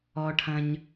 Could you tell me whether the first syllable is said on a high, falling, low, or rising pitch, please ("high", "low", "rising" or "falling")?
low